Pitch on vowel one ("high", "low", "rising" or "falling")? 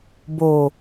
low